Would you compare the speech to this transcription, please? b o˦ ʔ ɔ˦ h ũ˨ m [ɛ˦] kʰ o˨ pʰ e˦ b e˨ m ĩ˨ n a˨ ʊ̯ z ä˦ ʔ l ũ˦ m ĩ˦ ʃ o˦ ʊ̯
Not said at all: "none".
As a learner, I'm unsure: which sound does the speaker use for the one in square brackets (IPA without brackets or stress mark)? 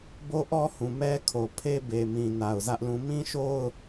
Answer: ɛ˦